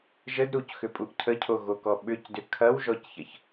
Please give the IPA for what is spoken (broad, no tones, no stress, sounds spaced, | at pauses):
ʒ ə d ɾ u c x ʏ pʼ u ʔ cʰ ə cʰ o ɣ o k ɔ ɓ ʏ c d ʏ kʰ ɐ w ʒ ɔ c ç ɐ ç